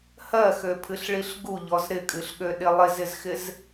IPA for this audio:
h ɜ x ø pʰ ɨ ɬ ɭ i ɬ ɡ u ʎ ɔ z ɾ ɪ kʼ ɨ ɬ ɠ ø ɗ ɪ lˠ ɪ z ɪ z x ɪ z

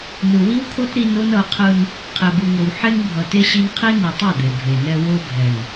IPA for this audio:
n ɯ˨ w i˦ w kʰ o˦ t ɾ i˦ n o˦ n ʌ˨˦ qʰ ɯ˦ n | qʰ e˨ b ɯ˨ ŋ o˨ w ħ e˦ ŋ bʱ ʌ˨ t e˦ ɕ i˦ n qʰ i˦ n ɯ˨ tˤ ʌ˦˨ d̪ e˨ bʱ e˨ n ɛ˦ w o˦ bʱ ɛ˨ n

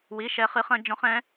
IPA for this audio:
w i˧˥˧ ʃ ɛ˦˥ χ ɨ˦˥ χ ɐ̃˦˥ d͡ʒ ɔ̃˦˥ χ ɛ̃˦˥

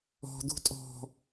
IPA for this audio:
ɔ̤ d̪ ṳ tʼ ɔ̤

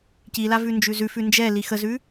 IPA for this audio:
c i l a v ʉ n d͡ʒ ʉ z ʉ f ʉ n d͡ʒ ɛ l i x ə z ʉ

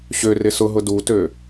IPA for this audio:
ɕ ø r ɪ s ʊ ɦ ʊ d u t ø

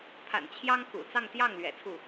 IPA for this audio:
pʰ a̰˨˩ n t͡ɕʰ j ɑ˥ ŋ k ṵ˨˩ t͡s ɑ˥˧ ŋ t̪ j ɑ˥˩ ŋ l ɥ ɛ̰˨˩ t͡sʰ u˥˩

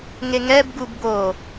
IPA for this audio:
ŋ e ŋ ɛ b ɡ u b ɡ o

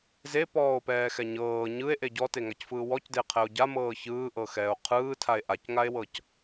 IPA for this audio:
z e p ɔː o̯ p ɛː x ɛ ɲ ɤː ɲ ɯ e̯ ʔ e ɟ ɔ t e ŋ a c f ɯː w ɔ c d e qʰ ɛ o̯ ɟ a m ɤː ç ɯː ʔ ɤ x ɛː o̯ qʰ ɯː tʰ a e̯ ʔ a c ŋ a e̯ w ɤ c

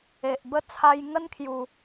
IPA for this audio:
e˨ ʔ b ə˥˧ t͡sʰ a˧ j ŋ ə˦ n kʰ j u˨˩

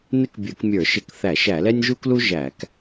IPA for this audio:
n ɪ˥ k bʲ ə˞˧˩˧ k mʲ ə˞˧˩˧ ʃ ɪ˧˩˧ k θ æ˧˩˧ ʃ æ˧˩˧ l ɛ˥ nʲ ʒ u˥ k l u˥ ʒ æ˧˩˧ k

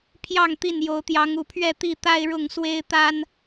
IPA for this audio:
pʰ j ɑ˥˨ ŋ t̪ i˥˨ n j o˨˦ ʊ̯ t̪ j ɑ˨˦ ŋ u˨˩ pʰ ɥ ɛ˥˨ t̪ i˥˨ t̪ a˦ ɪ̯ ɻ ʊ˥˨ ŋ s w e˦ ɪ̯ t̪ a˦ n

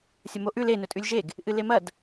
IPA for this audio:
sʲ ɐ m o ʔ ʉ l e n ɵ tʼ ʉ lʲ ʒ e ɡ | ʔ ɨ l e m ɐ d

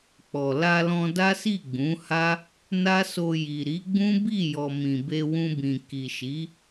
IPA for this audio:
k͡p ɔ˨ l a˧ l ɔ̃˧ d a˦ s i˦˨ ɡ͡b ũ˨˦ h a˦ | n a˦ s o˧ j i˨ ɾ i˨˦ ɡ͡b ũ˦ b i˦˨ j ɔ˨ m ĩ˨ b e˧ w ũ˧ b ĩ˨ k i˨ ʃ i˨˦

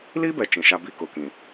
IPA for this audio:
l i˦ b ɛ˨ t͡ʃ ĩ˨ ʃ a˦ b i˦ k ʊ˨ k ĩ˨

